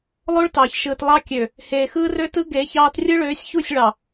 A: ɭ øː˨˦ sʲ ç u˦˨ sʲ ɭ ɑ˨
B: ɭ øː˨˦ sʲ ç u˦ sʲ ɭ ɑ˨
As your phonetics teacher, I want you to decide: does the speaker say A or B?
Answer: A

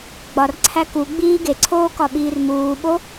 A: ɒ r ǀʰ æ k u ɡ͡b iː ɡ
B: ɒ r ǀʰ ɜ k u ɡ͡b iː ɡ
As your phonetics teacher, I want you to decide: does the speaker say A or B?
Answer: A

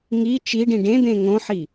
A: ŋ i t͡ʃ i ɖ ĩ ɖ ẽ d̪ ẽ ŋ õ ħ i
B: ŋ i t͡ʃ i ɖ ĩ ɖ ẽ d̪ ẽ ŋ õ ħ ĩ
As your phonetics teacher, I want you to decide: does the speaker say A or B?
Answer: A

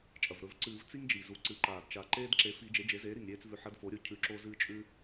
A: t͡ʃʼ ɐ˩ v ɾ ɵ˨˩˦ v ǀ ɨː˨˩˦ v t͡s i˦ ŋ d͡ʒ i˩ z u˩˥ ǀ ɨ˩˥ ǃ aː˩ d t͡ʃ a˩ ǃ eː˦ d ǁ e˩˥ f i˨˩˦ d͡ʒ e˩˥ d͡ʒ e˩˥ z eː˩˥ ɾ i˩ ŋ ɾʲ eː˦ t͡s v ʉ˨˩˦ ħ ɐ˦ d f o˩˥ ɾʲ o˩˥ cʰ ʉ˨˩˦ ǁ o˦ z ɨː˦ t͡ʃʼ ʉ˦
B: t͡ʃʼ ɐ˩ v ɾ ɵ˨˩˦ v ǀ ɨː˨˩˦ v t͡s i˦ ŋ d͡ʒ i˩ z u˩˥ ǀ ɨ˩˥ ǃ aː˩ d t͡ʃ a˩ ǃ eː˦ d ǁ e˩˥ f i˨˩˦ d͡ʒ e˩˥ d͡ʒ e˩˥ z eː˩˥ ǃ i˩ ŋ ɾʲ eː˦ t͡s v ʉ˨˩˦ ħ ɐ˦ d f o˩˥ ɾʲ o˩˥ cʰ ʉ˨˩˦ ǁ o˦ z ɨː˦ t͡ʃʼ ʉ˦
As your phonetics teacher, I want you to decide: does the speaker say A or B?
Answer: A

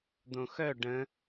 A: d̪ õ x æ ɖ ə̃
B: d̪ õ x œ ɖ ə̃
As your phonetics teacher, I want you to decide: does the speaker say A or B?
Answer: B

